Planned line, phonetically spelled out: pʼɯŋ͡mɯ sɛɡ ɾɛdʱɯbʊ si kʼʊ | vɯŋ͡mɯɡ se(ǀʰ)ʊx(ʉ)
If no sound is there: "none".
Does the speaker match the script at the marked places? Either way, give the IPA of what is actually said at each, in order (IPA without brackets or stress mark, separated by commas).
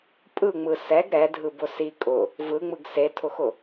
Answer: tʰ, ʊ